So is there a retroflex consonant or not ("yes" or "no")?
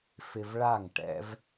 yes